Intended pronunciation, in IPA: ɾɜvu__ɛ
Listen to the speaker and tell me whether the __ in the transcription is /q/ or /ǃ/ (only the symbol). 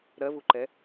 ǃ